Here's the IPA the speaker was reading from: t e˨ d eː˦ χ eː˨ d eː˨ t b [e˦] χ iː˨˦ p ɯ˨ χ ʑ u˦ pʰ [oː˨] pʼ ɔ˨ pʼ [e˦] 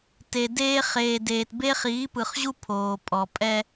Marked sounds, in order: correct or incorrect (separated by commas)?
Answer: correct, correct, incorrect